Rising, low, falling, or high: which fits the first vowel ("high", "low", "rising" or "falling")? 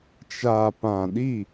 low